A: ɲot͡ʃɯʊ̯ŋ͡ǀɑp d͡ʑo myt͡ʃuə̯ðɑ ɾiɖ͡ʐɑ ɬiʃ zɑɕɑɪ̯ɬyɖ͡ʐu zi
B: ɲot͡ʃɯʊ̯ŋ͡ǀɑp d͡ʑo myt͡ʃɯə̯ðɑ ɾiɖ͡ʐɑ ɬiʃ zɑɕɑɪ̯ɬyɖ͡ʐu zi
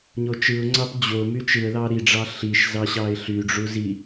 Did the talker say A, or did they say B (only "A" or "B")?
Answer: B